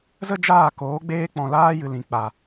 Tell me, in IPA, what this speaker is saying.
z ə˦ d͡ʒ aː˦˨ k oː˨˦ ɡ͡b eː˦ k͡p ɔ̃˨ l aː˦ j ɨ˨ l ĩ˨ k͡p a˨

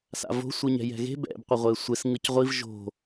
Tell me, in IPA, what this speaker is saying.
s a̰ v o̤ sʷ i ɲ ɛ̤ j ɛ̤ ɣ e̤ b ɛ̰ b qʷ ʌ ʁʷ e sʷ e s ŋ ɯ c ʁʷ i v ʒ o̤

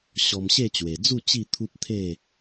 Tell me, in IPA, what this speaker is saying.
ɕ ɔ˧ m ɕ e˥˧ t͡ɕ w e˨˩ d͡z u˥˧ t͡ɕ i˥˧ t̪ʰ u˦ p̚ t̪ʰ e˥˧

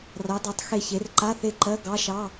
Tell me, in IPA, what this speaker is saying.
r ɑ˨˥ d ɑ˨˥ tˤ x e˦˨ ç e˨˥ r ǃ a˧˥˧ θ e˦˨ ǃ ɜ˧˥˧ ɡ ɑ˧˥˧ ʃ ɑ˧˥˧

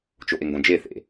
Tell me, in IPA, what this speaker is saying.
t͡ʃ o ʔ e ŋ ɡ õ d͡ʒ e θ ḛ

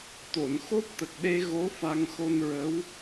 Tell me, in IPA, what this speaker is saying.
t̪ o˨˩˨ n x o˦˥ p̚ t̪ ə˨˩ k̚ ɗ e˧ ɣ o˧˥ f a˧ ŋ x o˧ n ɹ ə˧˥ w

